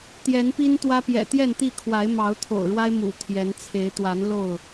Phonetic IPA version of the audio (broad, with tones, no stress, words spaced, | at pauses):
t̪jɛ˨˦npi˦nt̪wä˦ pjɛ̰˨˩t̪jɛ˥˨nt̪i˥˨ kʰwa˨˦ɪ̯mɑ˨˦ʊ̯ t̪ʰo̰˨˩ʊ̯ɻwa˦ɪ̯mṵ˨˩ t̪ʰjɛ˨˦nt͡sʰe˨˦ɪ̯ t̪wa˨˦nlo˥˨ʊ̯